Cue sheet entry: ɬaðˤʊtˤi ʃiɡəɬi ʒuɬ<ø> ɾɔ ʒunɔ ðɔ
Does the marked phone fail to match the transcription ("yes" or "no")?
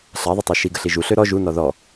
no